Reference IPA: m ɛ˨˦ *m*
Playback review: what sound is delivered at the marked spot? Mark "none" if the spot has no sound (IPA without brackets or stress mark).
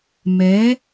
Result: none